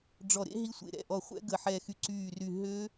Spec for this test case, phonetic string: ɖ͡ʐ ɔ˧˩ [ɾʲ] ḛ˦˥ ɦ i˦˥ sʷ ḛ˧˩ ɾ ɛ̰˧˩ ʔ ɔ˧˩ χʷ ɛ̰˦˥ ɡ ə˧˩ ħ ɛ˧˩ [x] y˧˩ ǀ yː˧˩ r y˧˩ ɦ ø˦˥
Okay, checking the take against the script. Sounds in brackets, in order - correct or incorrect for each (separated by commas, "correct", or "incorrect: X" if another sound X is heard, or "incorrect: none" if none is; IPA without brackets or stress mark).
incorrect: ɾ, correct